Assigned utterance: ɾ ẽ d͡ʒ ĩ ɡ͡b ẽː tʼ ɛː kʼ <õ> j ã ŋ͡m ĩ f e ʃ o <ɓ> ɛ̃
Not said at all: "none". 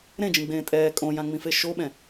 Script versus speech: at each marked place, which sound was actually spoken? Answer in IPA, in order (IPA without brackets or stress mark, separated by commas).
õ, ɓ